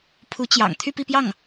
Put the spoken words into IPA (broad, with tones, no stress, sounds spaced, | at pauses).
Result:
pʰ u˧˥ t͡ɕ j ɑ̰˨˩ ŋ t̪ʰ y˥˧ p i˥˧ p j ɑ˥˩ ŋ